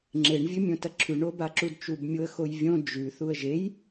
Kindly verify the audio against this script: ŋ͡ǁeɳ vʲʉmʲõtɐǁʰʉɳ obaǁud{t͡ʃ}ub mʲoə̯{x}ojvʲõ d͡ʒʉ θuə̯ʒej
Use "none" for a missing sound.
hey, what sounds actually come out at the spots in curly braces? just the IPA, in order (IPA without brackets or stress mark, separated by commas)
t͡ʃ, x